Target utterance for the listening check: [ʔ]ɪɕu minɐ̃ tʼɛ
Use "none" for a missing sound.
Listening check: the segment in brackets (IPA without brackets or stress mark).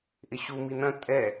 ʔ